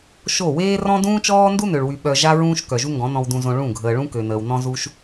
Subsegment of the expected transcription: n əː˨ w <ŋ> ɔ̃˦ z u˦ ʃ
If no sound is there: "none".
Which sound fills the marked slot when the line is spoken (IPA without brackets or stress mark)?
n